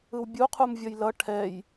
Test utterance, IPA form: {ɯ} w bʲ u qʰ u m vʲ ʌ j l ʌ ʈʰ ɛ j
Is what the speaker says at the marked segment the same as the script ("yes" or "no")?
yes